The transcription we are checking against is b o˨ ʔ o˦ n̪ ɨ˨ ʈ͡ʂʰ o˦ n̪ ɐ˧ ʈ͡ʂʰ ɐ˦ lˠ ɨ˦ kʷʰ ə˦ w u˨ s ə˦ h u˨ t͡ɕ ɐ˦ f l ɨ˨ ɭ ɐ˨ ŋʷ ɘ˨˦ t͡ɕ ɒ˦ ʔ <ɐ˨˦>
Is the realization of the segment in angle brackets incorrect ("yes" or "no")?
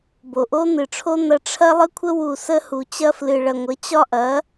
no